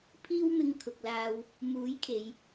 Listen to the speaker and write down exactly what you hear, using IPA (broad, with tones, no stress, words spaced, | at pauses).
pʰiː˧wmɪ˨ŋ kʰʊ˨k̚laː˧w | muː˨˥jkʰe˨˧j